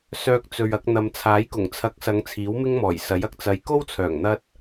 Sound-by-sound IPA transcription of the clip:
s œː˨ k̚ t͡s ɵ˨ ɥ ɐ˧ k̚ n̪ ɐ˨ m t͡sʰ aː˨˥ j k ʊ˨˩ ŋ t͡sʰ ɐ˨˥ k̚ s ɐ˨˧ ŋ t͡sʰ iː˨˥ w m ɪ˥ ŋ m ɔː˨˩ j s ɐ˨˥ j ɐ˨ k̚ t͡s ɐ˧ j k o˥ w t͡sʰ œː˨˩ ŋ n̪ ɐ˥ t̚

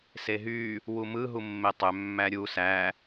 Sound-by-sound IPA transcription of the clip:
s e ɦ y | w u m ɯ ɦ u mː e tˤ ø mː æ ɾʲ u s æ

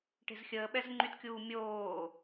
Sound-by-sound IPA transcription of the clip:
ʈ e̤ z xʲ əː ɓ ɛ z ŋ͡ǃ y t kʲ uː mʲ oː

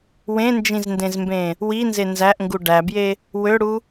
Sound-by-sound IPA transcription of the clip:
w ẽ n d͡ʒ ĩ z n d ẽ z m b ẽ | w i n z e n z æ ʔ ŋ ɡ u ɖ æ b j e | w ø ɽ u

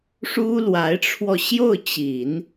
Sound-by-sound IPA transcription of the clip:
ʂ u˥ l w a˧˥ ɪ̯ ʈ͡ʂʰ w ɔ˧ ɕ j o˥˩ ʊ̯ t͡ɕ i˨˩˦ n

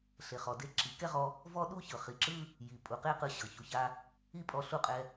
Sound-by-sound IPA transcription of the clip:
ɬ e˨ χ ɔ˨ d e˧ ǁ i˨ k ɛ˦ ʁ ɔ˧ | v ɔ˦ ɗ u˦ ç ɤ˨ χ i˨ ǁ ɯ˦ | j i˨ pʼ u˨ q e˦ q ɯ˧ ɕ ɤ˨ ç u˧ ç a˦ | i˦ pʼ ɔ˧ ɬ u˦˨ qʼ ɛ˧

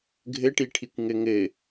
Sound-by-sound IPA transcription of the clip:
ɡʱ ɘ ʈ i ʈʰ i kʷ ŋ ɘ ŋ ɘ

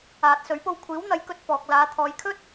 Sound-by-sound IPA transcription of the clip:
aː˨ t̚ s ɵ˨˥ ɥ p o˧ w kʷʰ iː˨˥ w n̪ ɐ˨˥ j k ɵ˧ t̚ f ɔː˨ k̚ l aː˨˧ t̪ʰ ɔː˨˧ j kʰ ɵ˥ t̚

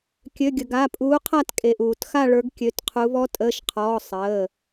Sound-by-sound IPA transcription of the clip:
kʲ ø˩˧˩ ɡʲ ə˩ ɡ a˩˧˩ pʼ uː˨˦ qʰ a˦˨ t kʼ e˩ ʔ uː˩ t x a˦˨ ɭ ə˞˨˦ ɡ kʲ ø˩˧˩ t qʰ u˨˦ β ɔ˨˦ tʼ əː˩˧˩ ʃ qʰ ɔː˩˧˩ sˤ əː˩˧˩

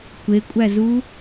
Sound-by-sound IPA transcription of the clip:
kʷ e kʷʼ æ z u

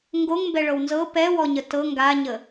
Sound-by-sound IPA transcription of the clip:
ŋ ɡ o ŋ m b ɛ ɭ ɤ w n z ɤ p ɛ w ɔ ɲ ə t ɤ ŋ ɡ a ɲ ə

